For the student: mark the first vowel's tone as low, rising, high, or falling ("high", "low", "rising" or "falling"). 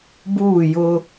falling